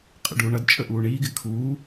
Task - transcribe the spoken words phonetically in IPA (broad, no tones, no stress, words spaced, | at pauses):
qʼə̰ɖuːɳʌd t͡ʃʼəʔuːɳiːɡ ɪkʰuː